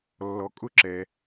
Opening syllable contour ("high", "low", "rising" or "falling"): low